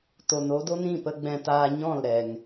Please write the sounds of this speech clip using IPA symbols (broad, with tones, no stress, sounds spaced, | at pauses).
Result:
t o˨ n o˦ d o˦ n ĩ˦˨ p ə˧ ɡ͡b ɛ̃˧ t aː˧ ɲ ɔ̃˦˨ l ɾ ɛ˨ ŋ